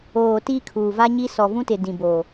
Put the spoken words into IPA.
oː˨ t iː˦ kʰ uː˨ v a˦ ɲ i˦ s ɔ˨ v ũ˦ t ɪ˨ d ĩ˨ b oː˨

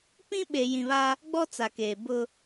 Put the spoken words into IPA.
p ĩ˦ ɓ e˨ j ĩ˨ β a˦ | ɡ͡b ɔ˦ t͡s a˨ k eː˨ b ʊ˦

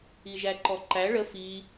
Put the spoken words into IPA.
i ʒ æ ǃ ɔ ǃ æ ɭ ə f i

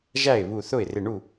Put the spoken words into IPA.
ʒ æ˥˩ ɪ̯ β u˧˩ θ ʊ˥˩ ɪ̯ r ɪ˧˩ ɳ u˥˩

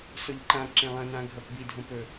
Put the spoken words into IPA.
s o ʎ ǃ ã ǁ ẽ lˠ ɐ̃ n ã ɡʱ ɐ p b i dʱ õ p ɵ

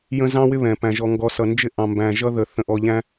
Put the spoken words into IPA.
j ə̃˦ z ɑ̃˦ w ɪ˦ β ɛ̃˨ p æ̃˨ ʒ ɔ˨ ŋ ɡ ɔ˨ s ʌ˨ n d͡ʒ ɪ˦ ʔ ɑ̃˨ m b æ̃˨ ʒ ʌ˦ ð ə˨ θ ə̃˨ ʔ ɔ˨ ʎ æ̃˦

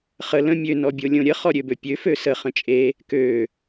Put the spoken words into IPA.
χ ə l ə̃ mʲ ø n ɔ bʲ o lʲ õ ɾʲ ə χ ɔ ɾʲ ø b ø pʲ ø f ø s ə χ ə̃ t͡ʃʼ e | k ø

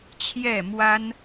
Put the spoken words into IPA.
t͡ɕʰ j ɛ˥˩ m w a˥ n

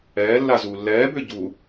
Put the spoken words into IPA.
ɛː lː a z uː lː ɛː b ʏː ɟ u

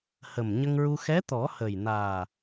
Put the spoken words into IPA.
h ə˨˩ m ɲ ə˧ ŋ ɹ u˧ x ɛ˧˥ t̪ ɔ˨˩˦ h ə˨˩ j n aː˨˩

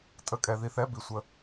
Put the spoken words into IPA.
tʼ ə˨˩˦ kʼ ɛ˩ ð i˩ θ ɛ˥˨ b i˩ sʷ ə˨˩˦

